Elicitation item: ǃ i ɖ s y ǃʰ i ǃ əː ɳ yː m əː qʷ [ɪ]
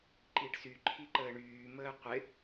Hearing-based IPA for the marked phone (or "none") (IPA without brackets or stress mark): ɪ